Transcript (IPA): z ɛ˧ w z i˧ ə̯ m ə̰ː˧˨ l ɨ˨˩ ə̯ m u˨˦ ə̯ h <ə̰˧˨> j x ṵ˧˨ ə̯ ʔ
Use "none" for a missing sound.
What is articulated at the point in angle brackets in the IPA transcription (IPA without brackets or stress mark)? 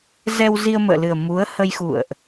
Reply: ə˧